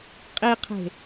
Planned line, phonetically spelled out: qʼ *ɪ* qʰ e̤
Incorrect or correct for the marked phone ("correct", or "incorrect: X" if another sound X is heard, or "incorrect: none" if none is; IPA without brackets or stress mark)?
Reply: incorrect: i